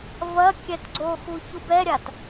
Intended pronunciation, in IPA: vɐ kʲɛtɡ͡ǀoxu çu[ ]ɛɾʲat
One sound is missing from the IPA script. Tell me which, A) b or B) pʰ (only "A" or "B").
A